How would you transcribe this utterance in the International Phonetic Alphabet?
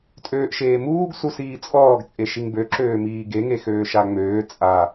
tʼ øː ʔ ʃ eː m uː ɡ s u s iː t͡sʼ ɔː ɡ t͡sʼ e ʃ i ŋ b ø ǁ øː m iː ɡ e ŋ e x øː ʃ a ŋ͡m øː t͡sʼ a

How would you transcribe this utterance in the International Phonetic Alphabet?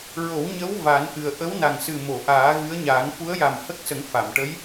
ɹ o˨˩˦ w ɲ ə˧˥ w v a˨˩˦ n ʔ ɨ˨˩ ə̯ ʔ ə˧˥ w n a˨˩ ŋ s ɨ˨˩ m o˨˩˨ ʔ aː˨˩˦ ɣ ɨ˧˥ ə̯ ɲ aː˨˩˦ ŋ f u˧˥ ə̯ j a˨˩ m h ə˦˥ k̚ s ə˨˩˦ ŋ f a˨˩˨ m ʈ ə˧˥ j

